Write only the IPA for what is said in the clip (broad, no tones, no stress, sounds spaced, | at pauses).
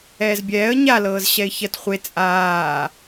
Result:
ɛː z bʲ ɛː ə̯ ɲ a l ɤː z ɕ ɛ ɪ̯ ç ɜ t χʷ e t͡sʼ aː